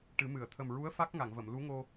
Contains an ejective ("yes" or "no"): no